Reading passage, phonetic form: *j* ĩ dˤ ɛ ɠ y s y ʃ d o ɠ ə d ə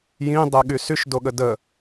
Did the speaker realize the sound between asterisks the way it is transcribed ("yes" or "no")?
yes